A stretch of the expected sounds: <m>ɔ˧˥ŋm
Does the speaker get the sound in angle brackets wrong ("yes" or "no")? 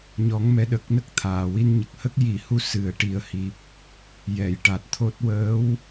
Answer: yes